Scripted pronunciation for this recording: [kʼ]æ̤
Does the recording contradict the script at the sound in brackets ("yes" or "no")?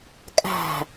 no